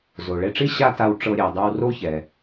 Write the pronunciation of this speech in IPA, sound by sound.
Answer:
z o˩ ɭ e˧ ʈ͡ʂ i˥ ɕ a˥ t a˧ w ʈ͡ʂ ɤ˧ ɾʲ e˩ dˤ e˧ w r o˥ ç ɛ˩

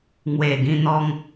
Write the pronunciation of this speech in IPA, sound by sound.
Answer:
ŋ w e˨˩ ɡ ĩ˧ n̪ ɔ˧ ŋ

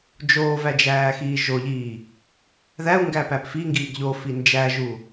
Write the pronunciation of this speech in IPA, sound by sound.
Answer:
d͡ʒ oː v æ d͡ʒ æː x iː ʒ o ʎ iː | ð æ u̯ ŋ ɡ æ p æ p f i ŋ ɡ iː ɡ ʎ o f i n d͡ʒ æ ʒ u

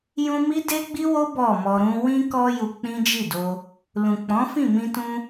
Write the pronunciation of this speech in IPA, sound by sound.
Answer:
j ũ˧ m i˦ d e˦ ɡ͡b i˦ w o˦ b ɔ˦˨ m ɔ˧ ɾ ũ˦ w ĩ˧ k ɔ˧ j u˧ k͡p ĩ˦ d͡ʒ i˦˨ d o˧ | l ũ˨ k͡p ɔ̃˨˦ f ĩ˦˨ m ĩ˧ t ũ˧

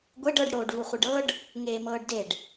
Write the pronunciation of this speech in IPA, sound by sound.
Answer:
ɡʷ e ɖ ɤ ɖ ɽ oː ɖ v u χʷ e ɖ ɤ ɖ | ŋ eː m ɤː ɖ d e ɖ

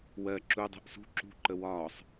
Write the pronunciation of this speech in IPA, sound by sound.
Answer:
w ɜ ǁ u dˤ ɛ̤ ʔ s ṳ ǁ ṳ ǃ ə w ɒː sˤ

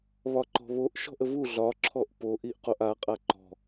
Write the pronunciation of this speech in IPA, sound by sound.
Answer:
β ɒ ǃ ɔ̤ β o ʔ ʃ ɔ̤ ʔ ə v u ɮ ɒ ǁʰ ɔ ʔ p o ʔ i ʔ q o ʔ a qʼ a ǃ ɔ̤

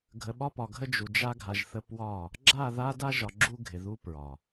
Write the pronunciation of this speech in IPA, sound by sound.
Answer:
ɡʱ ə˨ ɓ ɒ˦ p ɒ˨ ɡʱ ə˦ d͡ʒ u˨ d͡ʒ a˦ ɡʱ a˨ ʒ θ ə˦ p w ɒ˦˨ | ɡ͡ǁ a˦˨ ð a˦ d a˦ ʒ ɒ˨ ɡ͡ǁ u˦ ɡʱ ɪ˨ ð u˦ p ɹ ɒ˨

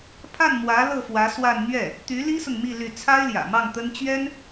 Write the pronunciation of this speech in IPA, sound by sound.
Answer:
pʰ a˥˩ n m w ä˧˥ l ɤ˥˩ f w ä˧˥ s w a˥˧ n n̪ ɥ ɛ˥˩ | t̪ y˧˥ l i˥ s ʊ˨ ŋ m i˥˧ l y˥˩ t͡sʰ a˥ ɪ̯ l j ä̰˨˩ m ɑ˥˩ ŋ t̪ ə˥ n t͡ɕ ɥ ɛ˥ n

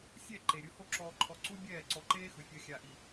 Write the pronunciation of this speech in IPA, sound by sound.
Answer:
sʲ ɛ˦˨ ǃ e˨ ɾʲ ɯ˧ h o˧ ǁ ɔː˨ ǃʰ ɔ˨ ǀ u˦ bʲ ɛː˦˨ ǀ ɔ˧ ǃ eː˦ x ɯ˨ fʲ ɤ˧ xʲ a˨ ʔ i˨

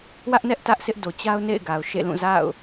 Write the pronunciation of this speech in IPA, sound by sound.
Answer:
w ä˦ ʔ n ɛ˦ ʔ t ä˦ ʔ s ɪ˦ ʔ d o˨ t͡ɕ a˦ ʊ̯ n ḛ˦˨ ɪ̯ ɡ a˨ ʊ̯ ʃ ḛ˦˨ l ũ˦˨ z a̰˦˨ ʊ̯

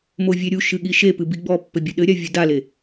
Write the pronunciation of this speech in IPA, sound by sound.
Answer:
m o vʲ e ɾʲ u ʃ ɨ ɠ i ʃ e p ɨ b i ɡ͡b ɔ pː ɘ bʲ ɘ ɗ ɘ ɾʲ a vʲ u d a l e

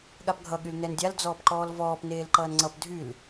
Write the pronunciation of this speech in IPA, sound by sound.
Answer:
ɠ a p ɡʱ ʌ ɠ y l n ɛ n dʲ a l d͡z ɔː p ǃ ɔː l v ɔː p n eː l ǃ ʌː n ŋ͡ǀ ʌ p dʱ y l

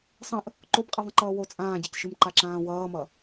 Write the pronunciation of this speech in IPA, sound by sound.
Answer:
sˤ ə̃ ʔ | ǃ o b qʼ ɨ ðˤ ə̃ ǃ ʌː w o t͡sʼ ãː ɟ e c ʃ ɨ m ǃ a ǁ ãː w ʌː m ʌ

